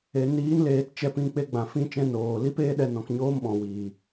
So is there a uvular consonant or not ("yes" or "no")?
no